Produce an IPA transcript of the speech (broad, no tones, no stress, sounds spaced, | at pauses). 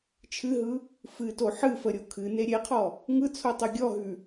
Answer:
t͡ʃʰ ɨ ɦ ɯ | f ɨ t o ħ ɨ f ə ɾʲ o kʰ ɨ n e ɾʲ e qʰ ɔ | ŋ ɯ t͡sʰ o tˤ u ɡʲ ɔ ɦ ʉ